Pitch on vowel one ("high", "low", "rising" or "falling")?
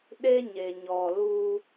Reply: high